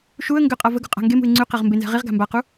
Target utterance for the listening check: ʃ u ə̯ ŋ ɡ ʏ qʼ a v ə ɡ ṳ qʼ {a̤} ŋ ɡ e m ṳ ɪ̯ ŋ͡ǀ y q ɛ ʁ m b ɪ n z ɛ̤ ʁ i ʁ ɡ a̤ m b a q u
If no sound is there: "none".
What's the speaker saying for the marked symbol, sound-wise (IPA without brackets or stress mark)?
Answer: a̤